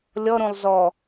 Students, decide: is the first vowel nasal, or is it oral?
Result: oral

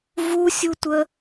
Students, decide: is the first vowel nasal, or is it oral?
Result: oral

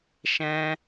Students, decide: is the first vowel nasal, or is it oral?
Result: nasal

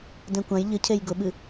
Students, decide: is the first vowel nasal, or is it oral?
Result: nasal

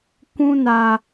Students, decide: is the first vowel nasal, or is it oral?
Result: nasal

